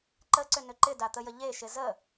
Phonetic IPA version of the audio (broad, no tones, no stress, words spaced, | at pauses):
ǃəǀʏnʏ ǃɪdat̪əjə ʎeʃɪ zə